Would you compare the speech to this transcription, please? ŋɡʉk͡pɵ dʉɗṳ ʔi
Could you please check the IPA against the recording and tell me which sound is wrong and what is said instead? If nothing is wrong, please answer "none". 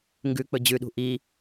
d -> d͡ʑ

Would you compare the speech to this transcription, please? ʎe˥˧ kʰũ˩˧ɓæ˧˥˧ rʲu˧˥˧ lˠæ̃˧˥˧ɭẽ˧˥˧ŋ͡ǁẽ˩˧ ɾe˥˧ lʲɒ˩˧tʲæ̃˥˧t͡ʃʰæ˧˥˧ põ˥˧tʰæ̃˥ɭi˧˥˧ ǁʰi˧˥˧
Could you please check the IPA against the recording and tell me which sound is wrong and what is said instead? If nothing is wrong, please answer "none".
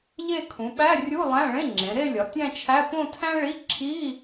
none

